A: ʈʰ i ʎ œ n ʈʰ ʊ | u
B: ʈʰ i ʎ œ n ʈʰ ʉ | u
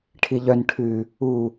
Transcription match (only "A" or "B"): B